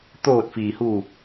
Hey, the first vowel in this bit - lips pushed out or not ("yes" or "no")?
yes